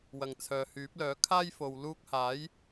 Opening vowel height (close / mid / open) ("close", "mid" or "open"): open